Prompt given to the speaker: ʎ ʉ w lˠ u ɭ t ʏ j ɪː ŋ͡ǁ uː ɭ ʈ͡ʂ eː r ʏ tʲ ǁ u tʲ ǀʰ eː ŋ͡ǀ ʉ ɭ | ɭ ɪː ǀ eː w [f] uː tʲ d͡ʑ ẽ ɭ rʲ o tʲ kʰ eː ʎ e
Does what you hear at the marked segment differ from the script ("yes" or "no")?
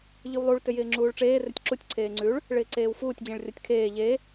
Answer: no